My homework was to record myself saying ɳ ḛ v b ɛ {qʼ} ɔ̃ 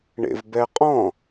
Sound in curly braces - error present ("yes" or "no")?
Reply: no